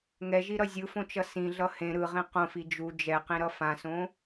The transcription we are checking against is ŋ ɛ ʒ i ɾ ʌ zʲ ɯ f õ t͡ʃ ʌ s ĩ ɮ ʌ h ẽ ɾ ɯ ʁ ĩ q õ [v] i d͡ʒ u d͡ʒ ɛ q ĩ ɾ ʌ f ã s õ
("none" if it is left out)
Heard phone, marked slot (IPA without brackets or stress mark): f